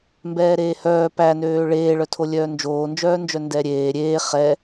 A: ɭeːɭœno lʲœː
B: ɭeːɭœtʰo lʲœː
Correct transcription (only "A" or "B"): B